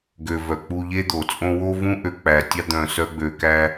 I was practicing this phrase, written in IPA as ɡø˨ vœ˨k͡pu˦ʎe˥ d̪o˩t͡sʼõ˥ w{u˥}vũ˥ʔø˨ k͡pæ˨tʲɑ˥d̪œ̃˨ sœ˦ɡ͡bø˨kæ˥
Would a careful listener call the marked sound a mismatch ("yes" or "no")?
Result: yes